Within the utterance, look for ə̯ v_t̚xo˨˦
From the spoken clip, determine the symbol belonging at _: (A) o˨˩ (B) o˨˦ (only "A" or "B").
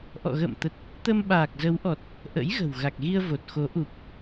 A